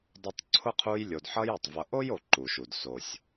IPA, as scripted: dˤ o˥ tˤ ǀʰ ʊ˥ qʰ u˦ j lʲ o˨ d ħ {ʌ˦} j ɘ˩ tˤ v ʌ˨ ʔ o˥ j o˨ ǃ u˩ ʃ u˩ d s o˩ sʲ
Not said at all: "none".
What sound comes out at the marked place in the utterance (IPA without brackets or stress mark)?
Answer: ʌ˦